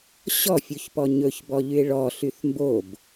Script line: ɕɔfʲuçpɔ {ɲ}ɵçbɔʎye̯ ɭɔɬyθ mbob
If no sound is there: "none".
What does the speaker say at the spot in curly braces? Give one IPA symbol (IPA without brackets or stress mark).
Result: ɲ